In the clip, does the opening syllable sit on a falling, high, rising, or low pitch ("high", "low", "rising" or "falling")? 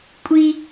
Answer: high